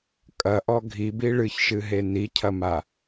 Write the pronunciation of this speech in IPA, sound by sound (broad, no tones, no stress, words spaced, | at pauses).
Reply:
kʼɐʔɔ ɡʱibi ɭɨçʃɨɦe nicʰɐma